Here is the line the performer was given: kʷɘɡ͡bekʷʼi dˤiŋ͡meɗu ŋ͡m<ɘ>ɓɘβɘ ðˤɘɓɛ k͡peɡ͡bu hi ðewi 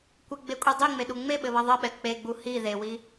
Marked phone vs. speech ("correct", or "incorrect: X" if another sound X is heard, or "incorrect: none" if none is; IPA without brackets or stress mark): incorrect: e